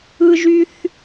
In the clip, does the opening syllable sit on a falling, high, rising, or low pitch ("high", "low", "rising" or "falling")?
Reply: low